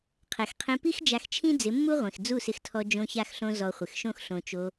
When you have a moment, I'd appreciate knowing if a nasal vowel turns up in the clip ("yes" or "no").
yes